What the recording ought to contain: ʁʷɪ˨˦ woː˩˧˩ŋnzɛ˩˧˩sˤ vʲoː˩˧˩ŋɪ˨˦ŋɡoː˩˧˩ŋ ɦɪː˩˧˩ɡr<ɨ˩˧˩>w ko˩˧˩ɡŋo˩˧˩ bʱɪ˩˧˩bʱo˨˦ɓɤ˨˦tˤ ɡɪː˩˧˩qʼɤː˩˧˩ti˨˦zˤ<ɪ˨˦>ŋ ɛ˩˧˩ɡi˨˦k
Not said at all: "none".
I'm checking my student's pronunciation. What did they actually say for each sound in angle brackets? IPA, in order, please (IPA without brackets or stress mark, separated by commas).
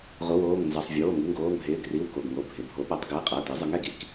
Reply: i˩˧˩, ɪ˨˦